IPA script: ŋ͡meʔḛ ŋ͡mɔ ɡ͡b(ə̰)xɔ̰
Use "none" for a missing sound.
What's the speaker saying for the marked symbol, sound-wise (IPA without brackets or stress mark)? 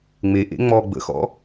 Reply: ə̰